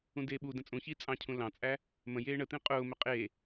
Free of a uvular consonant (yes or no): no